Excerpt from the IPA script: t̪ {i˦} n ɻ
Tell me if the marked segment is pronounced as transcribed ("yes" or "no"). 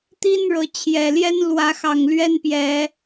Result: yes